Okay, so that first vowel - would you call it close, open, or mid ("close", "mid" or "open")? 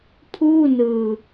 close